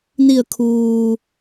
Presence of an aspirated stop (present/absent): present